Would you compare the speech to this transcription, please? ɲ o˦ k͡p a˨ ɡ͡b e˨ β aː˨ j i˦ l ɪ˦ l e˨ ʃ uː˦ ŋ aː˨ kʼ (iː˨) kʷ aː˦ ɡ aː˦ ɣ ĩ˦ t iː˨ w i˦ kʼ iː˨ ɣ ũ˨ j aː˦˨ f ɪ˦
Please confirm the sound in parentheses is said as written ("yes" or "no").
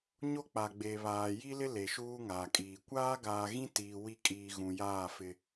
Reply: yes